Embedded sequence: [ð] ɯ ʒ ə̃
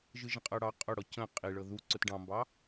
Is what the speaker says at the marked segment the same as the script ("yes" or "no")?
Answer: no